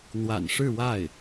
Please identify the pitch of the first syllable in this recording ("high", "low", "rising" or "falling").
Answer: low